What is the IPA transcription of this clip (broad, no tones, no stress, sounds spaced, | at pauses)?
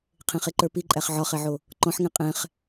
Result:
qʰ ẽ χ e ǃ ə˞ p i ǃʼ æ χ ʕ ɒ χ ɛ ʕ o | ǃ ɔ̃ ħ ŋ ɛ̃ qʼ ɛ̃ χ